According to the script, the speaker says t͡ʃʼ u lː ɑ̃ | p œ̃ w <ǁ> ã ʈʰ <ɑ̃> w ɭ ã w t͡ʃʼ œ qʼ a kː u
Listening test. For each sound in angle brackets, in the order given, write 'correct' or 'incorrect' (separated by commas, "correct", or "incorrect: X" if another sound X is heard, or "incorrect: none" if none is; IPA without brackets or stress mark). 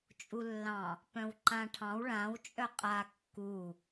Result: incorrect: ǃ, correct